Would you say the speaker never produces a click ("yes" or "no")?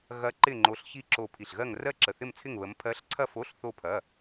no